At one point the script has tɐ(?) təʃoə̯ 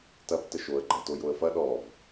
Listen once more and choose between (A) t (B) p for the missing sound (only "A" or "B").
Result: B